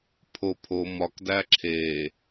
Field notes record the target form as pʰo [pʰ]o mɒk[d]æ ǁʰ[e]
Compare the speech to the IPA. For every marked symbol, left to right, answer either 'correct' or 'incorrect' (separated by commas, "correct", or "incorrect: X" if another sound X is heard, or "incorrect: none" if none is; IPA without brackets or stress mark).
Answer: correct, correct, correct